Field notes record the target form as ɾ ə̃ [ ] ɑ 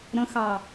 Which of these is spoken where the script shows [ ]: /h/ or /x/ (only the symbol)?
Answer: x